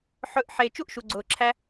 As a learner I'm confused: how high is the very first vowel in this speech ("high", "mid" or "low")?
mid